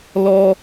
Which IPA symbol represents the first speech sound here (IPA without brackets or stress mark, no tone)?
l